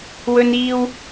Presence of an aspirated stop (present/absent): absent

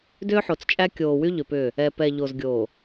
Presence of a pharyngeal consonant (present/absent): present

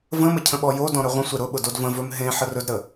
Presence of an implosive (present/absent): present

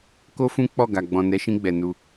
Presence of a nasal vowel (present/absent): present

